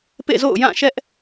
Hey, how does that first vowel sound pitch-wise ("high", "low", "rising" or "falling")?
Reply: falling